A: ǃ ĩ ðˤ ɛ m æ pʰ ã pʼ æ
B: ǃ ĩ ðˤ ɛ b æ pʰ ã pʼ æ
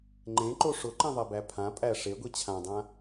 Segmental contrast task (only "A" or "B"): B